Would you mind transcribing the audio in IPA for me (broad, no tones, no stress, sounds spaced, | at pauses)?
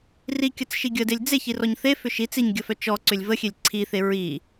r i kʲ ə t͡s ʃ i ɡʲ ə d e lʲ d͡z e ç i r ɔ ɲ θ e f ʏ ʃ i t͡s i ɲ ɡʲ ə f œ t͡ʃ ɔ ǀ ʏ lʲ v ə xʲ e lʲ ǀʰ i θ e ɹ i